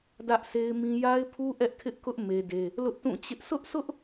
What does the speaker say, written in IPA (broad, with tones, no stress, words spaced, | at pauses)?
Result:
dä˦ʔsʰe˦ɪ̯mĩ˦ ja˦ɪ̯pʰu˦ ʔɛ˦ʔkʰɪ˦ʔkʊ˦ʔ me˦de˦ | lʊ˦ʔtũ˦˨t͡ɕɪ˦ʔ sʰʊ˦ʔsʰʊ˦ʔ